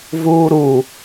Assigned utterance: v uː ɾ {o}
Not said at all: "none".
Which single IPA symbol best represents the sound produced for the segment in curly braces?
u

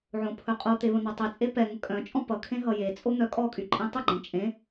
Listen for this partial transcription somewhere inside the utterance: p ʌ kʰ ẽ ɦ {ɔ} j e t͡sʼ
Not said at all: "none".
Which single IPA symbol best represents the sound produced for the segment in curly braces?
ʌ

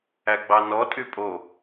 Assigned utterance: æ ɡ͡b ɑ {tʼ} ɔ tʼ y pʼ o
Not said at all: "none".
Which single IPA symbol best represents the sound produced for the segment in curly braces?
n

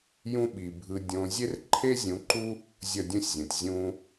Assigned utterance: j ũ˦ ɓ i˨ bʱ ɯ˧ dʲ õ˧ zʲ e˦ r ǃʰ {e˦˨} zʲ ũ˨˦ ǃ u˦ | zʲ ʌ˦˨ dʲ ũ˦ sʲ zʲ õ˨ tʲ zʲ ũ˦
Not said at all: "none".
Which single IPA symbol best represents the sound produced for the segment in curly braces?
e˦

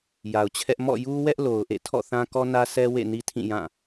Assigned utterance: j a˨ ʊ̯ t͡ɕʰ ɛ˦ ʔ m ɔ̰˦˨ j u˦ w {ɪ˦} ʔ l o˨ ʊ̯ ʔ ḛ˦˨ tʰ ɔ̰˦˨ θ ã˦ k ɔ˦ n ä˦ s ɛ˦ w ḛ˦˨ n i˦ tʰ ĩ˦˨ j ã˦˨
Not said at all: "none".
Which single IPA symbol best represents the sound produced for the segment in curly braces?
ɛ˦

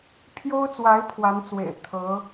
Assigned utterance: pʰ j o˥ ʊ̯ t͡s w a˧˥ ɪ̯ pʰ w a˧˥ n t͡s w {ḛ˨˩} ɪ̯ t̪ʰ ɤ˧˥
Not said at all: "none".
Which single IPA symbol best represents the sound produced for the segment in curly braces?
ḛ˨˩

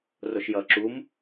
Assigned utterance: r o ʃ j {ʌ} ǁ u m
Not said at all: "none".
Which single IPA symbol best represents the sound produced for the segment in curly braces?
ʌ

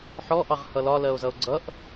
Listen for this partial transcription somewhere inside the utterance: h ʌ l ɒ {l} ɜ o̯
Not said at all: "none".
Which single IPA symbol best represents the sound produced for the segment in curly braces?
l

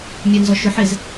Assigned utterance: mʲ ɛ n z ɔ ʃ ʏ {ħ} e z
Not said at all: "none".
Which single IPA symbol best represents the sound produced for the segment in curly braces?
ħ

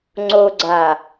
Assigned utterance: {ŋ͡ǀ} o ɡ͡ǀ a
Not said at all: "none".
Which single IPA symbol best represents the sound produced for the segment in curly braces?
ŋ͡ǀ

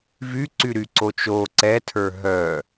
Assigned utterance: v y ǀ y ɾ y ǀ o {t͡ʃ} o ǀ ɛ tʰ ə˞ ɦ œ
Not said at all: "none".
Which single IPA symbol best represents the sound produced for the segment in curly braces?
t͡ʃ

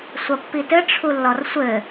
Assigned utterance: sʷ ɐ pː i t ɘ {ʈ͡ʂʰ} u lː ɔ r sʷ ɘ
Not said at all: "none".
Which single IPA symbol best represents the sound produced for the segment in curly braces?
ʈ͡ʂʰ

